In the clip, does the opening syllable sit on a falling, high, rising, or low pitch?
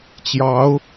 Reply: rising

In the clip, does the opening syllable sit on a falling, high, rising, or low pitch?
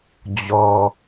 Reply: low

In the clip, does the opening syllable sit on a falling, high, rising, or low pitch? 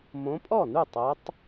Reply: rising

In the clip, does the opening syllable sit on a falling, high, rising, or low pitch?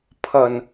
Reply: low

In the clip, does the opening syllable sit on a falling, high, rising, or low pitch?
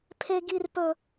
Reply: high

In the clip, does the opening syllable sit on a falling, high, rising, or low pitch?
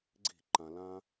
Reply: falling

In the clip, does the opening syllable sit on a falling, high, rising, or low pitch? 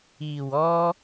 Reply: low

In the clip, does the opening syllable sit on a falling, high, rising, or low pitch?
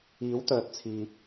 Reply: rising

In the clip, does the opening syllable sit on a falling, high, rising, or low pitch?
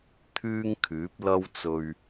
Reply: high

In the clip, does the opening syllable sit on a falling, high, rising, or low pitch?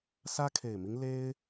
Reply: high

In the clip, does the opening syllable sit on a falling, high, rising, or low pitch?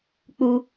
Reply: high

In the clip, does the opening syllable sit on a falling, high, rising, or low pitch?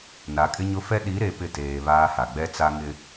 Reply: rising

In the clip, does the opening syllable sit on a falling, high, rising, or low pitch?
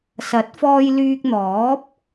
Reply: rising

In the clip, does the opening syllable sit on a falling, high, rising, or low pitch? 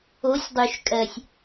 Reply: rising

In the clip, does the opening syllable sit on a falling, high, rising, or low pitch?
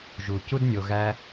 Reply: low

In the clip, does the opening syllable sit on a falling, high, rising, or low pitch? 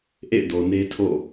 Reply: falling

